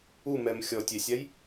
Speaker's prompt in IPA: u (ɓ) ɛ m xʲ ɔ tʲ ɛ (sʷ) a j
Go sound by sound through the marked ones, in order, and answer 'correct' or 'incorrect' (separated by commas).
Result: incorrect, incorrect